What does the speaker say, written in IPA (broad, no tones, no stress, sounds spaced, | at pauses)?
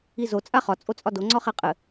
i z o t͡sʼ a χ ɒ t͡sʼ o t͡sʼ ɒ d o ŋ͡ǀ ɒ χ ɛ qʼ ɘ